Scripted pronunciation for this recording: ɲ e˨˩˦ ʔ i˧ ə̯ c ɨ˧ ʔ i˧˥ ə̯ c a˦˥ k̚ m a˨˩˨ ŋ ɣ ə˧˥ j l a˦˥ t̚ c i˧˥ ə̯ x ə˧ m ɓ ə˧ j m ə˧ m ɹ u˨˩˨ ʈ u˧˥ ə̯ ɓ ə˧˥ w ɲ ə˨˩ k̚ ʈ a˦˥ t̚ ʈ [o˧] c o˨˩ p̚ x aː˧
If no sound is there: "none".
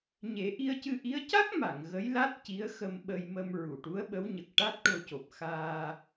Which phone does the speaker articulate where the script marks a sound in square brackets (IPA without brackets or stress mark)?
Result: o˧